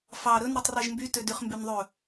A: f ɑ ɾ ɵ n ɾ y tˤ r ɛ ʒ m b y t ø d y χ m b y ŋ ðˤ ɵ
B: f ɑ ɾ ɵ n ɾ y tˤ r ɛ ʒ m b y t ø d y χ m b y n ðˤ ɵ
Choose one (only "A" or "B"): B